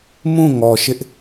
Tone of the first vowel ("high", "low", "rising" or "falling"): falling